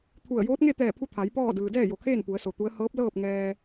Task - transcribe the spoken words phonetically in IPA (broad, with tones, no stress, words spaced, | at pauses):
t̪ʰu˧˩ə̯ joː˧˥t̚ŋe˥˨t̪ɛː˧˩pʰu˧ t̪ʰa˩˧j pɔː˥˨dɯː˩ dɛː˥˨jo˩kʰeː˥˨n pu˩˧ə̯so˩t̪u˧˥ə̯ hɤː˧˥p̚lɤː˥˨p̚ ŋɛː˧